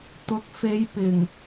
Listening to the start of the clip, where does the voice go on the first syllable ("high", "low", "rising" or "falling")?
rising